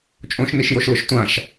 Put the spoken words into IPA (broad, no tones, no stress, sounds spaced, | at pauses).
t͡ʃʼ õ ʃ n i ʃ j o ʃ l ʊ ʃ tʷ ã ʃ